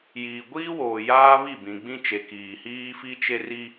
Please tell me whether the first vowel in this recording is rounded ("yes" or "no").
no